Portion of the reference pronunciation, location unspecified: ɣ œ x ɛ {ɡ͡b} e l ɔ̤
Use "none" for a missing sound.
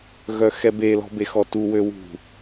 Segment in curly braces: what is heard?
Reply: b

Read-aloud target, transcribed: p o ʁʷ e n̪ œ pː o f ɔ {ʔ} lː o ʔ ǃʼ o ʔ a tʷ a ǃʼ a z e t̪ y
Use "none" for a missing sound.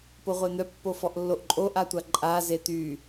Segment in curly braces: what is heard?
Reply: ʔ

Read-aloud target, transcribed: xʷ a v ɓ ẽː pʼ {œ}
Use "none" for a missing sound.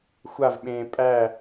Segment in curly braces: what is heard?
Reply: æ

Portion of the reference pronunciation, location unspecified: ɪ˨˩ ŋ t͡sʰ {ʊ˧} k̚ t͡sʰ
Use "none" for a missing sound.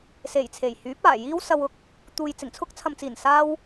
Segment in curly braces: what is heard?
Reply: ʊ˥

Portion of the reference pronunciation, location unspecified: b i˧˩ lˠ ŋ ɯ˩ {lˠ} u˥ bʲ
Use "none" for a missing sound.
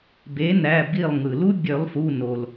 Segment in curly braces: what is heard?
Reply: l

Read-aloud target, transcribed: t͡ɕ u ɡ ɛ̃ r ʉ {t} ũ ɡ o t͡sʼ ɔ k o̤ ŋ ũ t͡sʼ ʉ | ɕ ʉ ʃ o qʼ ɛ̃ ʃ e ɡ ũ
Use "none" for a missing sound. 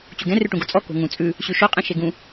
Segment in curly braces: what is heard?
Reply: ʈ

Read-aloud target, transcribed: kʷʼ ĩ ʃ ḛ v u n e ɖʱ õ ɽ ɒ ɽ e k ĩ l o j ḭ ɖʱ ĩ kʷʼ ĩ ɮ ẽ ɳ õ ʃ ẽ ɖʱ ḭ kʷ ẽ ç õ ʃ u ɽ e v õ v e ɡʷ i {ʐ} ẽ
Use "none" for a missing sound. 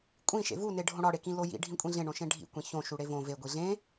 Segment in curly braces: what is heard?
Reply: ɮ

